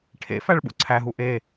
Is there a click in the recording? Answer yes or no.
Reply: yes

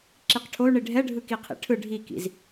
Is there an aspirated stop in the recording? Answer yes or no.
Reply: yes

